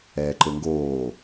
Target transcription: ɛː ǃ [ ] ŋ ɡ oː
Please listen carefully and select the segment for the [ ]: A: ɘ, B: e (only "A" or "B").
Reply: A